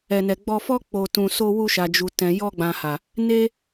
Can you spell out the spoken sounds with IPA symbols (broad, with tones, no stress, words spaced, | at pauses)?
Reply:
ɛ˧nɛ˧ ɡ͡bɔ˧fɔ˦ k͡po˧tũ˧so˦ wu˧ʃa˨d͡ʒu˨tɛ̃˨ jɔ˧ɡ͡bã˨ ha˨ | ne˦